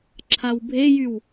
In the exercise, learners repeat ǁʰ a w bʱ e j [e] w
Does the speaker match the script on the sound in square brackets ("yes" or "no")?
no